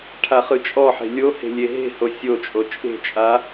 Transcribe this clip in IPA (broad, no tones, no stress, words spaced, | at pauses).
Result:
ʈʰaχɯt͡ʃʼɔħe̤ lʲohe̤ lʲeɦe̤ho sʲot͡ʃʼo t͡ʃʼe̤t͡ʃʼa